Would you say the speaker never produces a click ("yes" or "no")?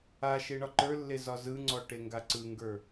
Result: no